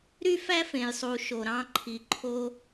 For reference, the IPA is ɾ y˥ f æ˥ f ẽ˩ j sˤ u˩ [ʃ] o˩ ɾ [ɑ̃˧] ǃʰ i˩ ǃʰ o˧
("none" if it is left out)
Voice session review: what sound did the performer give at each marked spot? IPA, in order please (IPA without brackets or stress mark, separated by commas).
ʃ, ɑ̃˧